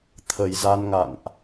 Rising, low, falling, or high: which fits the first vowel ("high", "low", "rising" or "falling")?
low